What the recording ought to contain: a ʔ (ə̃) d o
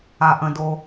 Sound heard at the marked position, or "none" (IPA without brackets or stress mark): ə̃